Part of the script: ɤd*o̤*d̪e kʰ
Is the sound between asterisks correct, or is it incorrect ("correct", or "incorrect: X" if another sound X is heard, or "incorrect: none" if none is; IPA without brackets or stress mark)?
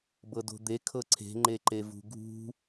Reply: correct